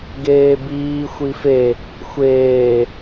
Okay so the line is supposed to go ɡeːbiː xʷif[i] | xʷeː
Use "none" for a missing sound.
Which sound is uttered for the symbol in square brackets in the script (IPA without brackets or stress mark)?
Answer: e